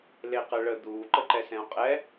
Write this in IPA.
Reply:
l e q ə ɭ ə d̪ uː ǃ ə ǃ ɛ s ɛ̃ o̯ qʼ ɛ

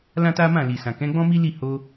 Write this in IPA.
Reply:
l ã˦ t a˦ m ã˦˨ l i˨ s ã˨ k ɛ̃˨˦ ɡ͡b ɔ̃˦ m i˦ l i˦˨ h o˧

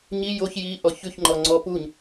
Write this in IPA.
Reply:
ɲ i j o ç j i ʔ ɔ ç ʉ ç ŋ͡ǃ ɔ ŋ͡ǀ ɔ p u ɲ

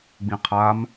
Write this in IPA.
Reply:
ɡ͡b ĩ qʰ a m

